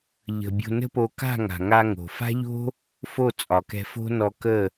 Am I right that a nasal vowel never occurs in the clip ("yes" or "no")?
yes